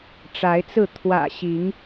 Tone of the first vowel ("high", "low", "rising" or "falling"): rising